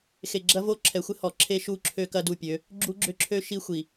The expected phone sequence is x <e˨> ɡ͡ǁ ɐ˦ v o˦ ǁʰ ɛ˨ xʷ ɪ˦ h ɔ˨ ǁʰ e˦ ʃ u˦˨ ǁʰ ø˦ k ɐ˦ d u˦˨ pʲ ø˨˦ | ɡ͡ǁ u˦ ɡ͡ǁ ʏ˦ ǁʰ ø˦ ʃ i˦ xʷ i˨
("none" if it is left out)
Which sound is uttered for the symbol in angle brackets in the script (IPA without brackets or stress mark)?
e˨